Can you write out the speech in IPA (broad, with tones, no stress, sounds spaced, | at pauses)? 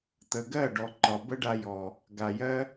t̪ ə˨ ɡ ɜ˦˨ ɖ ɔ˨ ǃ ɒ˨ b ə˦ ɖ a˧ j ɔ˨ | ɡ a˨ j ɜ˦